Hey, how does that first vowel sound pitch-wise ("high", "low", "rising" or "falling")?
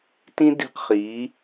high